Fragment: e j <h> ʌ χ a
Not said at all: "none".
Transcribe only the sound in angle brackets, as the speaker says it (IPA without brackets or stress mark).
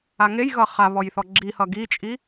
ɣ